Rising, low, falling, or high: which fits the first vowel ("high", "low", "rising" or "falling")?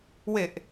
low